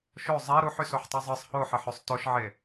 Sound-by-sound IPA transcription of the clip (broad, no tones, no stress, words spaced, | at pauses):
ʃo zˤe ɾuħysoħtˤi zˤɯsˤ hoħeħøsˤ toʃʕe